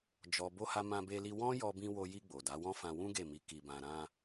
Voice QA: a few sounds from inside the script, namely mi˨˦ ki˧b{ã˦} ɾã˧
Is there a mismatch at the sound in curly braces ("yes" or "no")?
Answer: yes